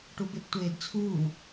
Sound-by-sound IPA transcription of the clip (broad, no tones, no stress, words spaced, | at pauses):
ʈubeptʷeːdt͡sʰuː